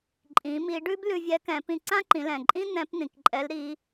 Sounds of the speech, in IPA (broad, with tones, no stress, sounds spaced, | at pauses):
ǃʼ ĩ˩˧ m i˩˧ ɖ ʉ˥ b l ʉ˧ vʲ ɛ˧˥ k ɛ̃˩˧ p ĩ˧ ǀ ã˥ ǃ ĩ˩˧ l ɛ̃˩ ǃʼ ĩ˥ n̪ ɛ̃˧˥ p n̪ ĩ˩ k ǃʼ ɛ˧˥ l ɾ i˧˥